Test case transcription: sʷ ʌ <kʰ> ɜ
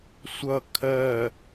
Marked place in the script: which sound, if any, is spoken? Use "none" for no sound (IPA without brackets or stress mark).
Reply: kʰ